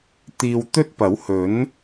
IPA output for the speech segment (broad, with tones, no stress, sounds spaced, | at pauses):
t̪ iː˧ w t̪ ɵ˥ t̚ p ɐ˨˥ w h ɵ˨˥ n